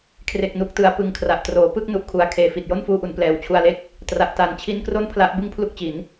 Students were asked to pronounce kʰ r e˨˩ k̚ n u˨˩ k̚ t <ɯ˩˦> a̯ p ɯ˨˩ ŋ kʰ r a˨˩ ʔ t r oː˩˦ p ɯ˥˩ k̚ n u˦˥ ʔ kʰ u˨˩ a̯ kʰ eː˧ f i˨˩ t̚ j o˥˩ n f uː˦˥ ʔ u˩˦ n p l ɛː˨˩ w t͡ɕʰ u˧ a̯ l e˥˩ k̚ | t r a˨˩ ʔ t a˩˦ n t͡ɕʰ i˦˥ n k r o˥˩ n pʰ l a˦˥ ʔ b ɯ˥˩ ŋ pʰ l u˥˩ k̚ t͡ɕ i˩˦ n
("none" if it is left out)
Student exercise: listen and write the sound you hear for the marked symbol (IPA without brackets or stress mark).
ɯ˩˦